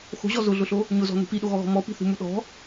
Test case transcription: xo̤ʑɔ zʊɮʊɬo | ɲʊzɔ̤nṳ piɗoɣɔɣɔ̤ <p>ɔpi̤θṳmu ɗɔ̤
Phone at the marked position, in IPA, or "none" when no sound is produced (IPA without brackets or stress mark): m